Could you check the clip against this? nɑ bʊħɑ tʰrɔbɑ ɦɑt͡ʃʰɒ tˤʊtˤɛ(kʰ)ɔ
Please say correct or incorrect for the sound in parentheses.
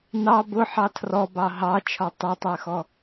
incorrect